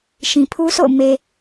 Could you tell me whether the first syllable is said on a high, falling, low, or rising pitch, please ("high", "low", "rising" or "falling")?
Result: low